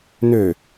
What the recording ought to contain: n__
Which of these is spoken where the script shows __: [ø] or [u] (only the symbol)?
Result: ø